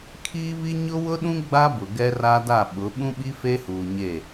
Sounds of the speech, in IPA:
kʰ iː˦ β i˦ ɲ ʊ˦ w ʊ˦ ɗ ũ˦ ɡ͡b a˦ b ʊ˨ ɡ ɛ˦ r a˦ d a˦˨ ɓ ʊ˨˦ ɓ ũ˦ ɓ i˦ f e˦ h uː˨ ɲ e˦˨

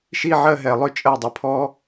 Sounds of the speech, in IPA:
ʃ i˥˧ ʕ ɜ˥˧ ɦ ɛ˧˩ lˠ ʏ˥˧ t͡ʃʼ ɜ˧˩ dˤ ə˩˧ pʰ ɔ˧

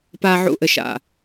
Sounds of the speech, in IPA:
p a˨ ʕ ṵ˨ ʔ ɘ˨ ʃ a̰˨

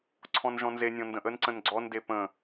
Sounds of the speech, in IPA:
ǀʰ ɔ̃ n ʒ ɔ̃ n z e nʲ ɔ̃ n d ə̃ ʔ ə n ǀ ə̃ n ɡ͡ǀ ɔ n d e p ə̃

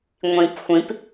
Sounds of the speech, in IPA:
ŋʷ ĩ p xʷ ĩ p

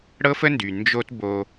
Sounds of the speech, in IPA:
ɽ ɤ˦ f ə˦ n d y˨ n d͡ʒ o˦ t b o˧

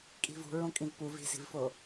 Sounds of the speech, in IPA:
kʼ i̤ v ṳ ɹ õ kʼ ĩ v p u v i̤ s i̤ v f o

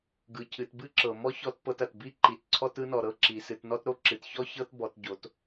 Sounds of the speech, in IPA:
ɡ ɯ˩˧ cʰ ɨ˩˧ t b ɨ˥ ǁ ɤ˩ m ɔ˥ ç ɔ˧ t p ɤ˧ t ɐ˩ t b i˥ ǃ i˩˧ t ǀʰ ɔ˥ t ɯ˥ n ɔ˩ ɾ ɤ˥ ǁ i˩˧ s ɨ˩˧ t n ɔ˥ t ɾ o˥ ǁ ɨ˩˧ t ç ɔ˥ ç ɤ˥ t b ɔ˩˧ t ɟ o˩˧ t

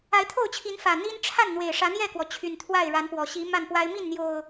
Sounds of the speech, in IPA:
a˨˦ ɪ̯ t̪ʰ o˥˨ ʊ̯ t͡ɕʰ i˨˦ n f ä˨˩ n̪ i˦ n ʈ͡ʂʰ a˥˨ n n̪ w e˨˩ ɪ̯ ʂ ä˨˦ n̪ j ɛ˥˨ k w ɔ˩ t͡ɕʰ y˨˩ n t̪ʰ w a˥˨ ɪ̯ ɻ a˨˦ n p w ɔ˨˩ ɕ i˨˦ m a˥˨ n p w a˦ ɪ̯ m i˥˨ n n̪ j o˨˩ ʊ̯

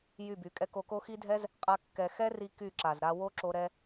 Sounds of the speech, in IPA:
j y˦˨ b y˨ kʼ ɛ˦ k o˧ k o˦ x i˦ dʱ ɛ˦ z | qʼ a˦ kː ɛ˧ x ɛ˦ r i˧ k y˦˨ ǁ a˨ z ɾ a˧ w o˦ ǁ o˧ ɾ ɛ˧

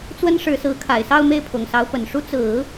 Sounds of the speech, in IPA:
t͡s w ə˥ n ʂ ɻ̩˧˥ s ɹ̩˧˥ kʰ a˨˩ ɪ̯ s ɑ˥˧ ʊ̯ m e˥˩ ɪ̯ pʰ ʊ˨˩ ŋ s ɑ˧˥ ʊ̯ p ə˨˩ n ʂ u˥ t͡s ɹ̩˨˩˦

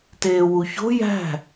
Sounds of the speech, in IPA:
t eː w u ç o̤ j æ̤

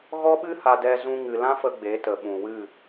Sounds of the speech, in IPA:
ɣ ɔ˦ ɓ ɨ˦ h a˧ d ɛ˧ z ũ˧ ŋ ɨ˨ l ã˦ f ə˧ ɡ͡b e˨˦ t ə˨ ɓ ũ˨ w ɨ˦˨

